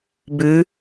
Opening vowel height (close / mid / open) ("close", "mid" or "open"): close